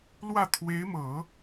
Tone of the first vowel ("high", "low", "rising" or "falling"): falling